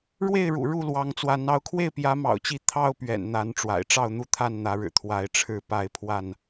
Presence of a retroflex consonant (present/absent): present